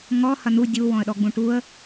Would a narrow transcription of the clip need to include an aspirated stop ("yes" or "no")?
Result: no